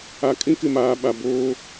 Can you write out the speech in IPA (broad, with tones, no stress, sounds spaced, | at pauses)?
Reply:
a˨ kʼ ĩ˦ k ɪ˨ m aː˨ ɓ a˨ b oː˦